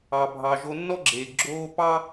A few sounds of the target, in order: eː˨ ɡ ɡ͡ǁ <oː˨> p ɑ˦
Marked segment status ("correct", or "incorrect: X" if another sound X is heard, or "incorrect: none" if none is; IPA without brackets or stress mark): incorrect: oː˦